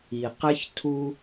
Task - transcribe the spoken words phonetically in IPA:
i˨ q ɘ˦ ç tʰ u˧

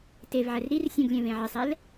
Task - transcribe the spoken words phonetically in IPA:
t e v ʕ ɛ r ɾ i r sʲ ũ ɡ lʲ ɛ̃ v ẽ ʕ ɪ sˤ ɛ l

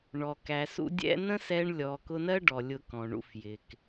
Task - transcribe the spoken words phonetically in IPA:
ɳ ɔ˨ k æ˨ s ṵ˧ dʲ ɛ̰˦ n ə̃˦ s ɛ˧ ɳ lʲ ɔ˨ k ʊ˧ n ɜ˦ ɖ ɔ˨ lʲ ʊ˧ k ɔ̃˨ ɳ ṵ˧ f j ɪ˨ k

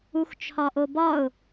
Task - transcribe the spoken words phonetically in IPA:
u x t͡ʃʰ ɒ ʔ o b ɒ ʊ̯

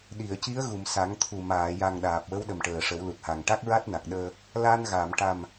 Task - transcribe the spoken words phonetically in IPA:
ɗ i˨˩˨ ə̯ c i˧˥ ə̯ ɣ u˨˩˨ m s a˨˩˦ ŋ t̪ʰ u˨˩ m aː˨˩˨ j a˨˩ ŋ ɗ aː˨˩ p̚ w ə˧˥ w ɗ ə˨˩ m ʈ əː˨˩ ʂ ə˨˩˦ w l u˨˩ t̚ h a˨˩ ŋ ʈ a˦˥ k̚ ɹ a˦˥ t̚ n a˨˩ k̚ ɗ əː˧ | l a˧ n ɣ a˨˩˨ m ʈ a˨˩ m

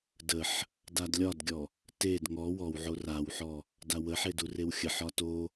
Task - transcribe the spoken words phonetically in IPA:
d ə ħ | d a d lʲ ɒ d ɡʲ ɔ | t e d ŋ ɔ w ɔ w ʕ o r a w ħ ɔ | d a w ə ħ e d u r e w xʲ ə ħ ɒ t o

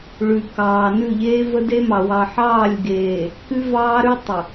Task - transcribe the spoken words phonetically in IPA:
ɭ ʉ˨ k ɑː˨ n ʉ˦˨ ʎ eː˦ v ə˦ d e˦ m ɑ˨ w ɑ˨ ħ ɑː˦˨ lʲ ɡ eː˨ | k ʉ˦ v ɑː˦ ɾ ʉ˦ tˤ ə˨

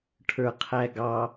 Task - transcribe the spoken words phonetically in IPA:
ʈʰ ə˞ qʰ æ ɡ ɑ

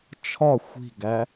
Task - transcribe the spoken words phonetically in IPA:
t͡ʃʰ ɒ xʷ i̤ ɡ æ

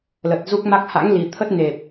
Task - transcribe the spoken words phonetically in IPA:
l ə˨˩ t̚ z u˦˥ k̚ m a˦˥ k̚ h a̰˧˥ ŋ l i˨˩ t̪ʰ ə˦˥ t̚ n e˨˩ p̚

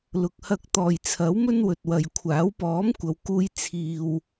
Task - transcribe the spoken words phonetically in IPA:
l ʊ˨ k̚ h ɐ˧ k̚ t̪ ɔː˨ j t͡sʰ ɐ˨˥ w m ɵ˥ n w ɵ˨ t̚ w ɐ˨ j kʷʰ aː˨˥ w p ɔː˨˥ m kʷ ɐ˨˧ w k uː˧ j t͡sʰ iː˧ w

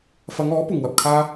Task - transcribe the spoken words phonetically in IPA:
f ɐ˨˧ ŋ ɔː˨˥ p ʊ˨ ŋ w ɐ˨ p̚ kʰ aː˥

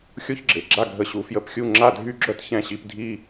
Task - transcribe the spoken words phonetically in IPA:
xʲ o˥ ç ɡ͡ǁ e˩ ɡ͡ǁ a˥˩ ɡʱ ə˧ ɕ u˩˥ f j ə˧ p xʲ u˥˩ ŋ͡ǁ a˥˩ dʱ y˥ ɡ͡ǁ œ˥ t ç ɛ̃˥˩ ɕ i˧ p dʱ i˥

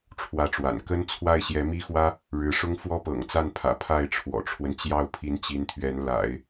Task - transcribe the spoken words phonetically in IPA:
ʈ͡ʂʰ w ä˥˩ ʈ͡ʂ w a̰˨˩ n k ə˥ n t͡sʰ w a˥˩ ɪ̯ ɕ j ɛ˧˥ m i˥ x w ä˥ | ɻ ɻ̩˧˥ ʂ ʊ˥ ŋ f w ɔ˥ p ɤ̰˨˩ ŋ t͡s a˥˩ n pʰ ä̰˨˩ pʰ a˥˩ ɪ̯ ʈ͡ʂʰ w ɔ̰˨˩ ʈ͡ʂʰ w ə˦ n t͡ɕ j ɑ˥˩ ʊ̯ pʰ i˧˥ n t͡ɕ i˧˥ n t̪ʰ ɥ ɛ˧˥ n l a̰˨˩˦ ɪ̯

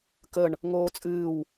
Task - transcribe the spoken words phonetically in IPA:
k ə ɳ | ŋ oː t͡sʼ ɨː w

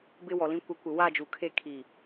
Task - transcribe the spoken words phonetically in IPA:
b ɪ˦ w ɔ˨ l ĩ˦ kʷ ɛ˨˦ kʷ ɪ˨ w a˦˨ d͡ʒ u˨ kʰ e˦˨ kʰ i˦˨

